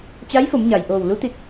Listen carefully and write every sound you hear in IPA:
t͡ɕa˧˥jfo˩˧mɲa˩j ʔoː˧˩wlu˧˥t̪i˧˩t̚

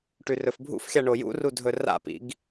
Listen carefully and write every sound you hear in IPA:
ʈʉrɵfbʱṵfxʲa ɳojṵru dʱɵra̰pḭɡ

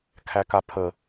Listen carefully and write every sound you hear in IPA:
kʰækapʰə

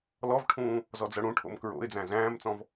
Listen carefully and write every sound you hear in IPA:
lɔvʈʰũː | zɔd͡zɤɽũʈʰo̰m kɹo̰ɪ̯d͡zæ̃ zæ̃ːmt͡sɔ̃v

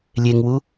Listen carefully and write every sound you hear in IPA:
lʲeŋwu

